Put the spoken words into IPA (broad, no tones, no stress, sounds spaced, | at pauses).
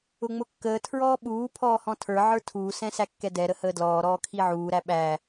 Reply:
ʊ ŋ͡m ʊ kː əː tʰ ɹ ɔː ɓ uː pʰ ɔː h ɔ̃ tʰ ə˞ ʕ ə˞ tʰ uː s ɛ̃ s æ kː ɛ d ɛ ɾ ə h əː d l ɔː ɾ ɔː kʰ i ʕ uː ɾ æ ɓ æ